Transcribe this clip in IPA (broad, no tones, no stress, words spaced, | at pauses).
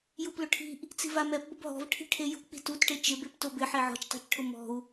juplʊʈʰi̤ʔ | t͡si̤vamɛp bʊbɦɔ̤v ʈʰi̤ʈʰejṳ k͡pi̤tutʈe t͡ʃɪbep tobɪ ħeʕɔ̤t͡ʃtˤa̤t͡ʃʈʰʊ mɔ̤u̯